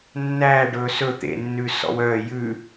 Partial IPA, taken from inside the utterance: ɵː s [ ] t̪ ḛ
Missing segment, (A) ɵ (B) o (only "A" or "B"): A